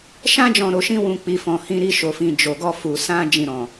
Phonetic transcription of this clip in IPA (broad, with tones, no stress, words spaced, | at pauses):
ʃã˦d͡ʒɔ̃˧ ɾo˧ʃĩ˦wũ˧ k͡pi˧fɔ̃˧ hĩ˧ɾi˧ʃo˨fĩ˨ d͡ʒo˨ɡɔ˧fu˨ sã˧ d͡ʒĩ˨ɾɔ̃˨